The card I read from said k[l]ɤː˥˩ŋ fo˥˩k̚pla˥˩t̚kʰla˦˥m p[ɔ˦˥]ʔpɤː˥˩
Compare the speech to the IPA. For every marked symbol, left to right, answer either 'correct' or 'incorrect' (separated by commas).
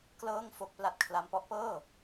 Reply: correct, correct